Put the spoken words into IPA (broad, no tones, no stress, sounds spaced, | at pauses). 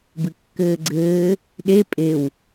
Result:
b ɨ kː ɘː ɡ͡ǀ ɘː | ɗ e pʼ e w